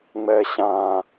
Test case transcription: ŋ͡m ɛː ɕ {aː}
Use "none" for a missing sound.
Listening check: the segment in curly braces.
ãː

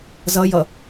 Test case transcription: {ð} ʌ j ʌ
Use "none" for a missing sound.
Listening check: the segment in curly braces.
z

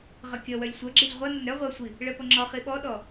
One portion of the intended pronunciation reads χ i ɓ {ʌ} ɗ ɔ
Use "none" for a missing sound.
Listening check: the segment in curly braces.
ɔ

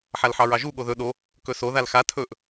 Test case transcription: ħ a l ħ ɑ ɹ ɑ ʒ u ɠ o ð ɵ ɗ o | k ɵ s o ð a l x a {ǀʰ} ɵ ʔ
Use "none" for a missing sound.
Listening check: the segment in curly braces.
tʰ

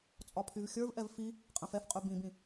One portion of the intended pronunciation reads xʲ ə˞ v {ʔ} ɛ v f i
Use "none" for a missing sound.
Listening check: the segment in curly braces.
ʔ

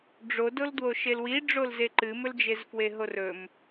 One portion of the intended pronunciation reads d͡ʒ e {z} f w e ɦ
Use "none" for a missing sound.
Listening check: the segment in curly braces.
z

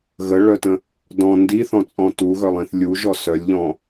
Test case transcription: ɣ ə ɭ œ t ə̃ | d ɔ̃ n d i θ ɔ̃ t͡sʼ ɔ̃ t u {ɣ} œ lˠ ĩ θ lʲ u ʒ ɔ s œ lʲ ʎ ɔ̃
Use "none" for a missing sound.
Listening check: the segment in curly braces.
ɣ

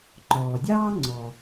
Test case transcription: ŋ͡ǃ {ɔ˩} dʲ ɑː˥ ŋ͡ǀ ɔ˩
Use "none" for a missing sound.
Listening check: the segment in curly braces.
ɔː˩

